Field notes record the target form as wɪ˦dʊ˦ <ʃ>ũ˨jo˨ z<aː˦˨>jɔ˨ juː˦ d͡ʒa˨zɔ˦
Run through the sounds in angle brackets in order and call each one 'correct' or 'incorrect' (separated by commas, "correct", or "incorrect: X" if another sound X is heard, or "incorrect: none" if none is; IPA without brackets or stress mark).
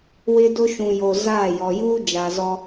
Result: correct, correct